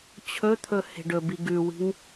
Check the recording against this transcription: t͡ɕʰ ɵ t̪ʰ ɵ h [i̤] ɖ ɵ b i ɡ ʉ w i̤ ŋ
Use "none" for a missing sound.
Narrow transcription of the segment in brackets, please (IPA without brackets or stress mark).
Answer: e̤